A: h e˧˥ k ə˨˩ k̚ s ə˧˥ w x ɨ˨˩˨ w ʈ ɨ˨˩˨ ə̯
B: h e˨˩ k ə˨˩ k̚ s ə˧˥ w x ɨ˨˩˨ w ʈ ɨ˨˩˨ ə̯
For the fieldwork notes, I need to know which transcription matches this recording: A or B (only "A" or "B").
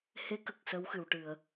A